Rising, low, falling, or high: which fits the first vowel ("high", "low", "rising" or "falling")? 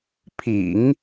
low